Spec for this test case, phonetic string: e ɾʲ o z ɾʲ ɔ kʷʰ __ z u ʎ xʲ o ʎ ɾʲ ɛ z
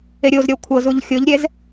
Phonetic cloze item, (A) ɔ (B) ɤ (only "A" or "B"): B